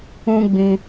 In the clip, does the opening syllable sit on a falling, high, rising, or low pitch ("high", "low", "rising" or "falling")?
high